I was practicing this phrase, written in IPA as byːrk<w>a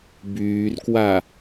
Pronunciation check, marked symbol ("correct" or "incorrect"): correct